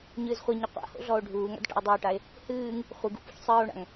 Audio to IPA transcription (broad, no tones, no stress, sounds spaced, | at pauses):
ɲ ɨː z χʷ i ɲ ɛ qʷ a̰ h o̰ ɮ ɔ o̯ ɖʱ uː ŋ a̰ d ʈ a̰ o̯ dˤ ɨ o̯ ʈ a e̯ | h ɨː ŋ | χʷ ɨ ɡ ṵ p ṵ ç sˤ ɨː o̯ ɳ a̰ ŋ